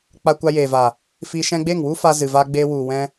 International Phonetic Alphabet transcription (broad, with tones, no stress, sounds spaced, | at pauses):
k͡p a˧ kʷ a˧ j eː˨ v a˨ | f iː˧ ʃ ɛ̃˦ ɡ͡b e˦˨ ŋ w u˦ f a˦ z ɨ˨ v a˧ ɡ͡b eː˧ w u˨ w ɛ̃˧